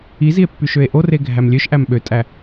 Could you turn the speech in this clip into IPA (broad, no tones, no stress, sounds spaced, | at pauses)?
i z i e̯ pː y ʃ ø e̯ ʔ o r e ɡʱ æ m lʲ ø ʃ ʔ æ m ɓ ø tʼ æ